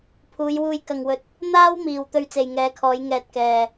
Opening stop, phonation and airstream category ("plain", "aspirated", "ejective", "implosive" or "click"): aspirated